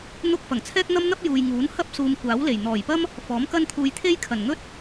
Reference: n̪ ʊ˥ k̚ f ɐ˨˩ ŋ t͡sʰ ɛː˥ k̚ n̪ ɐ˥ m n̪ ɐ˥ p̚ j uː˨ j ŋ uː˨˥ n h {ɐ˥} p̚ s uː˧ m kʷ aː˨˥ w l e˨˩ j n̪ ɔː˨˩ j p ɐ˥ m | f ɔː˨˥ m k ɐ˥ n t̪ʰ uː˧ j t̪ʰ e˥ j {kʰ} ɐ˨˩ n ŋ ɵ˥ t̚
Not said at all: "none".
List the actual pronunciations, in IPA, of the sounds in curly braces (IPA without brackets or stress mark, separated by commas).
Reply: ɐ˥, kʰ